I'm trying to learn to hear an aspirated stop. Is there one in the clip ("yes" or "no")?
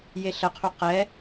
yes